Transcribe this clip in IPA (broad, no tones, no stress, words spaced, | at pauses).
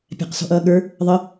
pʲæ̤qsɔ̤ʔʌːɠə˞ | ðˤə